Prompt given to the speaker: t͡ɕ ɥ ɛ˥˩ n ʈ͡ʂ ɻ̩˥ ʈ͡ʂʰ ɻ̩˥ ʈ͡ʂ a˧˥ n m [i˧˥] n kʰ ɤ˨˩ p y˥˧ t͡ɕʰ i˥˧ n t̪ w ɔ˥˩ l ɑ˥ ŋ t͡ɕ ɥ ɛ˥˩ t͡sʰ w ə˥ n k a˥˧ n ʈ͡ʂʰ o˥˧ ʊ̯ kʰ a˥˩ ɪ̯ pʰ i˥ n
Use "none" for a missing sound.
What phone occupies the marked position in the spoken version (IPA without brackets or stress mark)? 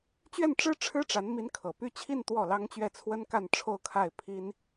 i˧˥